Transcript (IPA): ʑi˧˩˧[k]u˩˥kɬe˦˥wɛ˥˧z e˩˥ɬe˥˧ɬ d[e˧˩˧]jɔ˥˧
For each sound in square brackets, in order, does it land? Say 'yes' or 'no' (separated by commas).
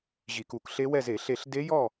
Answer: yes, no